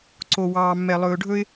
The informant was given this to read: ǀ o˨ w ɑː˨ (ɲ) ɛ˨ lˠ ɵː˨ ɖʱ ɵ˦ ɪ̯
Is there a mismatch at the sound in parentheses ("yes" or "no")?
yes